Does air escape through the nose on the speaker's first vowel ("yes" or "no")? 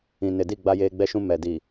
yes